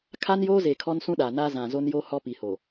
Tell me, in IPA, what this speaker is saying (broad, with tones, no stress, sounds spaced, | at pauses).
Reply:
kʰ a˦ n j oː˦ z e˨ kʰ ɔ˦ n s ũ˦ ɗ aː˨ n aː˦ z ã˨ z o˦ n j oː˦ h ɔ˦ p i˨ h o˨